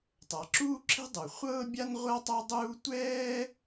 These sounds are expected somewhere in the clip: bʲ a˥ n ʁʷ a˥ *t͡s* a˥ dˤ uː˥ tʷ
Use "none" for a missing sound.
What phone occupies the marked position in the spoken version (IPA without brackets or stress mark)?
tˤ